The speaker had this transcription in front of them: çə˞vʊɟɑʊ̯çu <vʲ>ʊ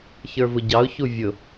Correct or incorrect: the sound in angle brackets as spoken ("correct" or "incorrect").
correct